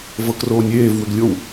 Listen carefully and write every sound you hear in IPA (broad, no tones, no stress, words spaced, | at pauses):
vɤkroːnʲeːvwʏɡ lʲow